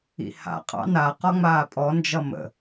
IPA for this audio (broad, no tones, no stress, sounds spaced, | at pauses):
ḭ h a̰ qʼ ɑ̰ n a q ɔ ŋ͡m aː pʼ ɔ n d͡ʒ ʌ m ə̰